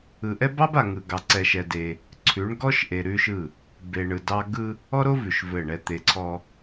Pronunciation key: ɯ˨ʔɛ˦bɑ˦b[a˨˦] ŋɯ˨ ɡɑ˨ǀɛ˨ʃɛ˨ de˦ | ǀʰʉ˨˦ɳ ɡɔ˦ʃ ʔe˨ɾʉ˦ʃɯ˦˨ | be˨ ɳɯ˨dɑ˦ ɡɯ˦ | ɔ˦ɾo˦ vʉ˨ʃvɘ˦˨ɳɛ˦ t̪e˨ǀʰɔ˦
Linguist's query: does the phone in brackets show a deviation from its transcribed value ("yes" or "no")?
yes